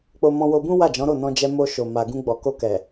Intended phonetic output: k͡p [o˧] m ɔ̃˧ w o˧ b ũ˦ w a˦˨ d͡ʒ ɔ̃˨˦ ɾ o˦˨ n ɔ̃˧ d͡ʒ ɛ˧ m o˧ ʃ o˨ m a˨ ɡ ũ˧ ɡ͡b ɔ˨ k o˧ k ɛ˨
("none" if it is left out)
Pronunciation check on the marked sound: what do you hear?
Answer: o˧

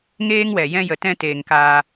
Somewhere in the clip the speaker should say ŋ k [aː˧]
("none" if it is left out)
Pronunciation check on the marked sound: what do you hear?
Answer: aː˧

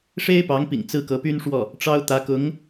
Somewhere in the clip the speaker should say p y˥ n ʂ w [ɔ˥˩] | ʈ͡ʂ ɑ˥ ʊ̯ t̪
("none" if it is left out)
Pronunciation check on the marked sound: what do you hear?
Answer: ɔ˥˩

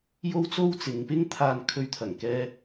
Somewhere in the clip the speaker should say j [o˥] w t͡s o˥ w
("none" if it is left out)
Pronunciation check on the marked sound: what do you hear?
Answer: o˥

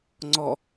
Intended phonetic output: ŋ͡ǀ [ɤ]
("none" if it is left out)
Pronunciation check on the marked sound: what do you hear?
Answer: ɔ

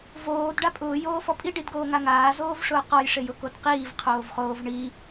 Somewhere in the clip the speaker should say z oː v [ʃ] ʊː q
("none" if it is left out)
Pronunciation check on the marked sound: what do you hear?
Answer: ʂ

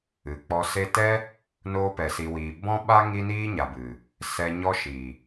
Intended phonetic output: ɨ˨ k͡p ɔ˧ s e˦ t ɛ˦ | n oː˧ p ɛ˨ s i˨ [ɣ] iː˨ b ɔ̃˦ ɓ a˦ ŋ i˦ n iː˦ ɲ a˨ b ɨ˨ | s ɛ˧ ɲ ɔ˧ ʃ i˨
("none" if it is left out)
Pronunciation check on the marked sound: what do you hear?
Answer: w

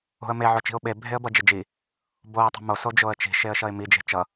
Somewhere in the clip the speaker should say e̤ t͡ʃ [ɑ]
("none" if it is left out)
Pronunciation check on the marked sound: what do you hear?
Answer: ʌ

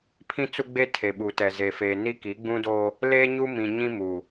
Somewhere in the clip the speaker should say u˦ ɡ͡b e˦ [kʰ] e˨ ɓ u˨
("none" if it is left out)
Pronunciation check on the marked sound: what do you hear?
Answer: tʰ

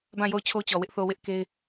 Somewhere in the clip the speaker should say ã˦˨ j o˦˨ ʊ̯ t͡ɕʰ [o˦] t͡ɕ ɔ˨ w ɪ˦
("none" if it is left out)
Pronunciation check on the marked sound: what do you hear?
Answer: o˦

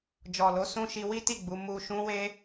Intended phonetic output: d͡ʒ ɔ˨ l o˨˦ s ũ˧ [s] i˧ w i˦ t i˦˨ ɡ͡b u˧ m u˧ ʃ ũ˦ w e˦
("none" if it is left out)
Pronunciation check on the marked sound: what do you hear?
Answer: ʃ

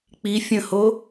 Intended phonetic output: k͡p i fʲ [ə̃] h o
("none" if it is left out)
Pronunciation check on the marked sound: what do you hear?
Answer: ə̃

